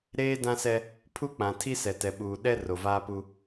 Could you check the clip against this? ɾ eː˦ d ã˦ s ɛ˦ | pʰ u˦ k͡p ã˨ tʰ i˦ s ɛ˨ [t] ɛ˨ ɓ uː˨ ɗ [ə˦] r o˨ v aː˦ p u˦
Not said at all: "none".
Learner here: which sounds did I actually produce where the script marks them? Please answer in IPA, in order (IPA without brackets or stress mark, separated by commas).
t, ɛ˦